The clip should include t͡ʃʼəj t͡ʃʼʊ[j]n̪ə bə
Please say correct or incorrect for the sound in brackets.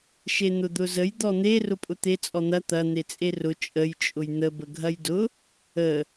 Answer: correct